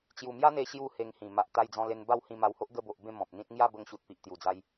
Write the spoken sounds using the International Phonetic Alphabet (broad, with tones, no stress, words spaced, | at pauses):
t͡ɕju˨˩mja˦n̪e˧ ɕju˥˧ he˧ŋhĩ˨˩ ma˨ʔ t̪a˧jd͡zɔ̃˧le˧n ba˥˧whĩ˧ma˧who˦ʔ ɡə˧bo˨ʔ bẽ˥˧mɔ̃˨p̚n̪ĩ˦t̚ ŋja˥˧bə˧ŋɕu˨t̚pi˨ʔ t̪ju˨˩d͡za˧j